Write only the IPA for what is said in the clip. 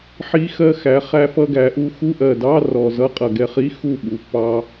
ħi˧xɜ˧xæ˩˧ χæ˧fʌ˧ɡæ˩˧ʔu˧ xu˧˥˧ʔɜ˨˩dɑ˧˥˧ rɔ˨˩zʌ˧˥˧ qʼʌ˨˩ɡɛ˧χi˧˥˧ xu˥˩ɓu˩˧pːɑ˧

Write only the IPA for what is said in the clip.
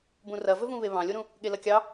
bũrɐvɵvũ βeβɑ̃lʲoɾũ | ɠelɐkʲɑ

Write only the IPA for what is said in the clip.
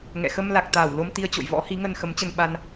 ŋɛ̰˧˨ xə˧m la˨˩k̚t̪aː˧˩w lo˧mt̪i˧ə̯t͡ɕo̰˧˨j vɔ̰˧˥hi˨˦ŋə˧n xə˨˦mt͡ɕə˧nɓa˧n

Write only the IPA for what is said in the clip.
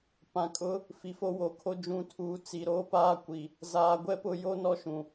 pã˨kʼʊ˦ | fi˨fo˦wo˨˦kʰo˦ d͡ʒũ˨tʰuː˨ t͡si˨ɾoː˦paː˦ kʷi˨ | zaː˨ɡʷɛ˦pʊ˦˨ jo˦nɔ˦ʃũ˨

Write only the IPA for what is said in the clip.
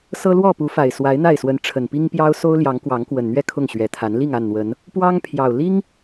sɤ˦lwɔ˥˨pu˨˦fa˨˩ɪ̯ swa˨˦ɪ̯n̪a˥˨ɪ̯swə˨˦n ʈ͡ʂʰə˨˩npi˦ŋ pjɑ˦ʊ̯ so˦ʊ̯ljɑ˨˦ŋkwɑ˨˦ŋ kwə˨˩nn̪ɥɛ˥˨ kʰʊ˥˨ŋɕɥɛ˨˩t̪ʰa˨˦n li˥˨ŋa˥˨nn̪wə˨˦n | pwɑ˦ŋpʰjɑ˨˩ʊ̯ li˦ŋ

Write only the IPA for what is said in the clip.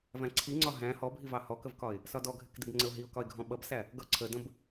væ̃ǀʰiŋ͡ǀɒ ɦæ̃ hɔbʱivɑ hɔkəvkɒɪ̯ | sɒdɔɡʱɪkdɪb ŋ͡ǀəʊ̯ɦiʊ̯kɒɪ̯ɡʱɔ̃ ɓʌbsæ | ɡʌ ǀʰədə̃b

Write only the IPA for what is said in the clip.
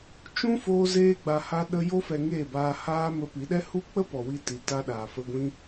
t͡ʃũ˦ foː˦zeː˦ɡ͡ba˧ ha˧ ɗə˦ jo˦fɛ˧ŋeː˦˨baː˧ haː˦mə˧ pi˨˦ɗɛ˦ hu˦k͡pə˦ pɔ˨wi˧ti˨ ta˧ɗaː˨fə˧ɡʷĩ˦

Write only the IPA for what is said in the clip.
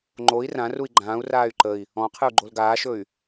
ŋ͡ǃoi̯ rãrui̯ ɡ͡ǃãːu̯raːy̯ ǃəi̯ | ɔ̃qʰɨu̯ ɡ͡ǃolɡaːʃɵy̯

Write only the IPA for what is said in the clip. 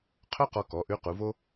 qʰœ˥qɔ˧kɔ˩˧ ʔʉ˧˥qu˩˧vo˥

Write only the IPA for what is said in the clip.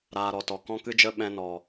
ɾaː˧ ɾɔ˨tɔ˨ kɔ̃˦kɨ˦d͡ʒə˦ ɓɛ̃˧nɔ˨

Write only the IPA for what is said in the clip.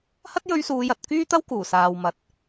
hɐ˥t̚jɵ˧ɥsuː˨˧jɐ˨t̚ kyː˥t̪ɐ˥w kuː˨˩saː˨wmɐ˨˥t̚

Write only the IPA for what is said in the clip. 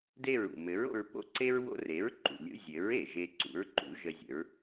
de˥˩ɹṵ˩ mɘ˩˥ɹ o̰˧ɹpo̰˥˩ǀe˥ɹ wo̰˧re˩˥ɹǃṵ˩ lʲṵ˧zʲɘ˩˥ɹ e˩ʒe˧ ǀṵ˩˥ɹǃṵ˩˥ ʒə˧zʲə̰˩˥ɹ

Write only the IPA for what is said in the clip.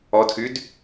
ɔdxyd

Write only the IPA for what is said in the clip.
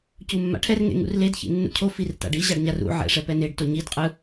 cumːa̰ʈʰɛr ŋḛŋṵrled çḭnːṵcʰo firta̰ɖi ʑaɖɲarṵ ʕɛ̰ ʂɛpɛneɖ toɲid qʼɯ

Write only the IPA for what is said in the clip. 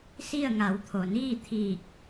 si˥˨ə̯ŋa˩˧wt̪ʰo˩ niː˥˨t̪ʰiː˧˩k̚

